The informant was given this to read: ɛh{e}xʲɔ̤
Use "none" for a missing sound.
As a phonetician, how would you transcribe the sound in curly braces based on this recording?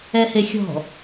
e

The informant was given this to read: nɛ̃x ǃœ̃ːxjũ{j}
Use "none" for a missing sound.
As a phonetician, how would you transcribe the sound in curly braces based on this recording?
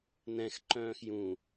none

